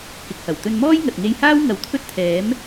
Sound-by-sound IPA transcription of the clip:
kɪ˨k̚hɐ˨˩w t̪ɵ˧nmɔː˥j ŋɐ˨t̚ŋe˧jhaː˥w ŋɐ˨˧wt̪ʰɵ˥t̚t̪ʰɛː˨˥m

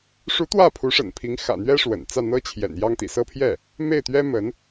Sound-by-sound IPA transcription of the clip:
ʂu˧˥ t̪wä˥˩pʰu˧˥ʂə̰˨˩npʰi˧˥ŋ xä̰˨˩n̪ɥɛ˥ ʂwə̰˨˩n t͡sä˥˩n̪ɤ˥t͡ɕʰjɛ̰˨˩n jɑ˥ŋt̪ḭ˨˩ sɤ˥˧pʰjɛ˥˩ | me˥˩ɪ̯t̪ɥɛ˥ mə˧˥n

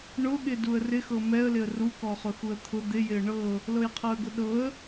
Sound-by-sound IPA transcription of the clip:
ɳʊɠɪ duə̯rɪxɤ mɛə̯lɪə̯ rukɔχʊxuə̯ t̪ʰʊ d̪ɪjɪə̯ ɳɤ | lɤjqʰɤə̯ɡʊɗɤə̯

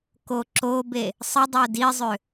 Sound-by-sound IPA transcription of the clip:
koǁobe | sˤədˤœ dizˤø

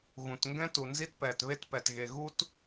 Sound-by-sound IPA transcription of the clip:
ɣũ˩tŋɡɛ̃˥ tu˩nzi˥tpɛː˩tβe˥t pɛ˩tɣe˩ ɣu˥t

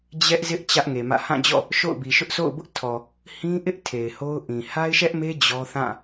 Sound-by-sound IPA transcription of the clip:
d͡ʑɛ˦ʔzɪ˦ʔ t͡ɕä˦ʔŋe˨mä̰˦˨ hã˦˨d͡ʑɔ̰˦˨ | ʃo̰˦˨ʊ̯bi˨ʃʊ˦ʔ so̰˦˨ʊ̯bʊ˦ʔtʰɔ˨ | hĩ˦ʔɪ˦ʔ tʰe˨ɪ̯ho˦ʊ̯ʔĩ˨ ha˦ɪ̯ʃɛ˦ʔme˦ d͡ʑɔ˦ θã˦˨

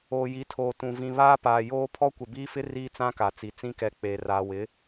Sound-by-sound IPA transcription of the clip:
oː˨ji˨˦tʰoː˨tũ˨ vĩ˨βaː˦paː˨ joː˦ pʰɔ˦kʷɪ˨biː˦fɪ˦ riː˦t͡sã˦ka˨t͡si˨ t͡sĩ˦kɛ˨ k͡peː˨ raː˨wɪ˨˦

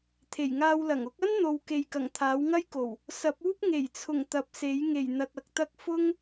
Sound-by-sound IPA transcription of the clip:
t̪ʰe˨˩jŋaː˧wlɐ˨˩ŋ ʊ˨˥k̚ɐ˥nn̪o˨w ke˨jkɐ˨˩ŋ t̪ʰaː˨˥wŋɐ˥jko˨˩w | sɐ˨˥p̚uː˥p̚ ŋe˨˩jt͡sʰʊ˨˩ŋ t̪ɐ˨˥p̚se˨˥j ŋe˨˩jn̪ɐ˨t̚ ɐ˨k̚t̪ɐ˧k̚ fʊ˥ŋ

